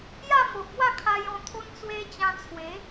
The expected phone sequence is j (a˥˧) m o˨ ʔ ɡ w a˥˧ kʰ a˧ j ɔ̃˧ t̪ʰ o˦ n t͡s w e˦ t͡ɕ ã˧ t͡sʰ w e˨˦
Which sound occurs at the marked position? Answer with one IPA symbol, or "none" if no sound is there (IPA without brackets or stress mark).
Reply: a˥˧